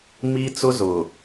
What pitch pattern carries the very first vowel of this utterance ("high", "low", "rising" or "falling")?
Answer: high